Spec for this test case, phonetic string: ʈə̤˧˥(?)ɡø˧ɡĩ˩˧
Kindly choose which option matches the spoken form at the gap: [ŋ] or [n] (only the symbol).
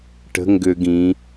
ŋ